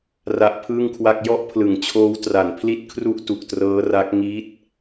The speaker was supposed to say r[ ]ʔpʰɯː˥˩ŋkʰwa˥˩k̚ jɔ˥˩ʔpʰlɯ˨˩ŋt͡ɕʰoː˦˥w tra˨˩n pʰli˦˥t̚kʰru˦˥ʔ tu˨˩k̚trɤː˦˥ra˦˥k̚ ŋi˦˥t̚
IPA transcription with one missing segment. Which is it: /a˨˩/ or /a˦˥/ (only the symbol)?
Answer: a˦˥